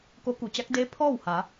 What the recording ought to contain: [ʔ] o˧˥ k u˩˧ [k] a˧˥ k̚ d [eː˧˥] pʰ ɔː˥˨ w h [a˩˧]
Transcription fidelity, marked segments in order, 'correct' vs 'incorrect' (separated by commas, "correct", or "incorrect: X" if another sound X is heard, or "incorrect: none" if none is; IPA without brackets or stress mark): incorrect: k, incorrect: t͡ɕ, correct, correct